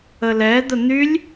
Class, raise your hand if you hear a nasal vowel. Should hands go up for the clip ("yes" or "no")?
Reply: no